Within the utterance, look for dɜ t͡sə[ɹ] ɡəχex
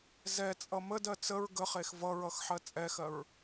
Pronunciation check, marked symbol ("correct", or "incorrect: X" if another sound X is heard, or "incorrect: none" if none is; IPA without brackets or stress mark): correct